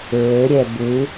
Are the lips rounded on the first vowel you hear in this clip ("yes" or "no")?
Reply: yes